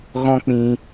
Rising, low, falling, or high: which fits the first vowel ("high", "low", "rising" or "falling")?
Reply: high